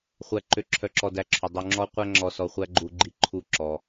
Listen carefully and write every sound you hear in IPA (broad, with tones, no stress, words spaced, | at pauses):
χʷæ˧ǃø˧ ǁʰœ˧ǁɔ˧dæ˧ǁʰu˩ dˤu˧ŋ͡ǁɔ˥ qʷæ˥ ŋ͡ǁɔ˧sɔ˧χʷæ˥ɡ͡ǃu˧ ɡ͡ǃi˧ǃʰu˧ ǁɔ˧